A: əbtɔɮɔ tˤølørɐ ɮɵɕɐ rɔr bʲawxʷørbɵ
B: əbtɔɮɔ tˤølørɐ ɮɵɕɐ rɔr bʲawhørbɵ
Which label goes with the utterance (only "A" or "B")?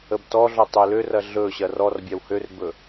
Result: B